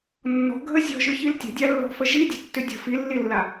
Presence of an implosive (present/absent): absent